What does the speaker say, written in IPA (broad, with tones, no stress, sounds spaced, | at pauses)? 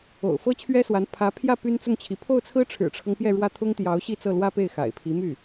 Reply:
o̰˨˩ ʊ̯ f ɤ˥ t͡ɕʰ ɥ ɛ˥ s w a˧˥ n pʰ ä˧˥ pʰ j ä˥˩ p y˥ n t͡s ʊ˥˩ ŋ t͡ɕʰ i˧˥ pʰ o˥˩ ʊ̯ t͡sʰ ɹ̩˥ ʈ͡ʂʰ ɻ̩˨˩ ʈ͡ʂʰ ɤ˦ ŋ p j ɛ˥˧ ɻ w ä˥˩ t̪ʰ ʊ˥ ŋ t̪ j ɑ˧˥ ʊ̯ ɕ i˥˧ t͡s ɤ˥˩ l w ä˥ p e˥˩ ɪ̯ x a̰˨˩ ɪ̯ pʰ i˧˥ m y˥˩